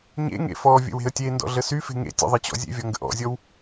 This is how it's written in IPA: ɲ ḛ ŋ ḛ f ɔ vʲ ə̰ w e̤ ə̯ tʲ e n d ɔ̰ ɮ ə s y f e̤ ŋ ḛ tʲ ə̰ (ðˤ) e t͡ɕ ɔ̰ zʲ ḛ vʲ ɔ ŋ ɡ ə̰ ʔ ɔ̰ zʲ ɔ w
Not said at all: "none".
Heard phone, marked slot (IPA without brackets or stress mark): ðˤ